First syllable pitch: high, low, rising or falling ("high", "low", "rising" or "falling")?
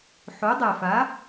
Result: rising